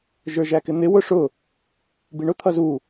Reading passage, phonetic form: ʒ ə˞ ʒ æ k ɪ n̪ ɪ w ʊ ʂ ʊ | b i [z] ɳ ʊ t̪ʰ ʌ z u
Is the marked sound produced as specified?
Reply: no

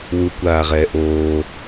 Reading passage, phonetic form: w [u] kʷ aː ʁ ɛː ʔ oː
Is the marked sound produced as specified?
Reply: yes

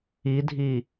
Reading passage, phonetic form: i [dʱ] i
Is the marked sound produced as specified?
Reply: yes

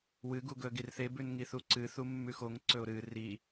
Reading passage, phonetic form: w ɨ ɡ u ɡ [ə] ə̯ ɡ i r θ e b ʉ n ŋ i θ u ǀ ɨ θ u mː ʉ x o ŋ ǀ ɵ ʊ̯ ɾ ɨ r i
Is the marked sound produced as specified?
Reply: no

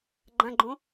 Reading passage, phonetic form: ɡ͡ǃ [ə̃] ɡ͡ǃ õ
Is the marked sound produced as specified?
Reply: no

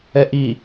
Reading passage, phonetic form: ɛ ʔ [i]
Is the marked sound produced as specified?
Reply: yes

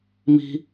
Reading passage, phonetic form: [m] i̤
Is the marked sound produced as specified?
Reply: yes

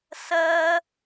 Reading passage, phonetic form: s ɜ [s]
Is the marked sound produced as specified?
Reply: no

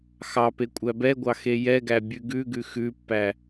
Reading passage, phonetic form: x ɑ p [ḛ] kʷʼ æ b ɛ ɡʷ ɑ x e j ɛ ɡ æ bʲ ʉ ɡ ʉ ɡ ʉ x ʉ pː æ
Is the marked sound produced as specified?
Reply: no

